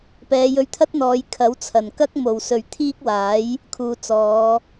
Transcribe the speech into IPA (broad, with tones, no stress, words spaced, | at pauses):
pɛː˨˧jɵ˧ɥt̪ʰɐ˥t̚n̪ɔː˨˧j kʰɐ˨˥wt͡sʰɐ˨˩nkɐ˥k̚ mo˨˩wsɵ˨˩ɥ t̪ʰiː˥k̚waː˨˥j | kʰuː˨ t͡sɔː˨˧